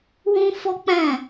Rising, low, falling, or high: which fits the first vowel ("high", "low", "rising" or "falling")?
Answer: high